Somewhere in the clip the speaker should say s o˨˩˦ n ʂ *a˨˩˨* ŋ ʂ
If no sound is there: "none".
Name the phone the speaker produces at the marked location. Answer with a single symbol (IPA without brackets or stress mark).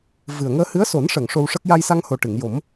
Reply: ə˨˩˨